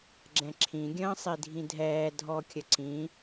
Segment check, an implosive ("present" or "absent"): absent